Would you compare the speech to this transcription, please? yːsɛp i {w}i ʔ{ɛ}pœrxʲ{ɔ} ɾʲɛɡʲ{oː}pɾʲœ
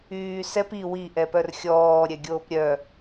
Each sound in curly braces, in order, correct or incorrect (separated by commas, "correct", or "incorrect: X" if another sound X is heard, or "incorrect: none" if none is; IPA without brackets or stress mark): correct, correct, incorrect: ɔː, correct